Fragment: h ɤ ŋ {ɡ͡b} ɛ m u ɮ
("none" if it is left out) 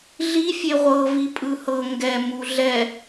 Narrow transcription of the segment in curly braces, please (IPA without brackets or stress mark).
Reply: ɡ